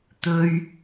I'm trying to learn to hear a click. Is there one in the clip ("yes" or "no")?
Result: no